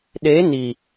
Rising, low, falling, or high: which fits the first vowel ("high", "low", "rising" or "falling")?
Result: rising